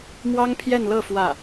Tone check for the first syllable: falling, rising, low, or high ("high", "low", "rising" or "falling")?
high